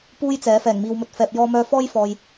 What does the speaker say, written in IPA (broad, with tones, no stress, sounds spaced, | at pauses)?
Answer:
p uː˥ j t͡s ɛː˨˥ f ɛː˨˩ ŋ m iː˨ w m ɵ˨ t̚ f ɛː˨ p̚ j ɔː˧ m œː˧ f ɔː˥ j f ɔː˨ j